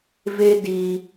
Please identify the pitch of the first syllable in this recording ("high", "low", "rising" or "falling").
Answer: high